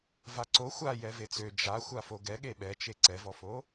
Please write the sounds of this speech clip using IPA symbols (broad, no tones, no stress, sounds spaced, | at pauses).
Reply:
v a ǀ o xʷ a j ɛ v e t͡s ø d͡ʒ a xʷ a f o ɡ ɛ ɠ e ɓ ɛ t͡ʃ e ǀ ɛ v ɔ f o